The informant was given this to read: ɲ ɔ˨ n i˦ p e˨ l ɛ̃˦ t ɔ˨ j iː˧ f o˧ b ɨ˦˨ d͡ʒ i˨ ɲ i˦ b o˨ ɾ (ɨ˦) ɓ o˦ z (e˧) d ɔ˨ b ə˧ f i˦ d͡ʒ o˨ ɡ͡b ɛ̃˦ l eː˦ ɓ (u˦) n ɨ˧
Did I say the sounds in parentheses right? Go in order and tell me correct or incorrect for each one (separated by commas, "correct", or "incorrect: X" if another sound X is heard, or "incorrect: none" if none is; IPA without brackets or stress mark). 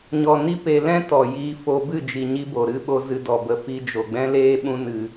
correct, incorrect: ɨ˧, incorrect: ũ˦